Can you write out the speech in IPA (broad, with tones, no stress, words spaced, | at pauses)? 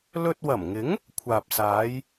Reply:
lɵ˧t̚wɐ˨˩mŋɪ˨˥ŋ | kʷʰaː˨p̚saː˨˧j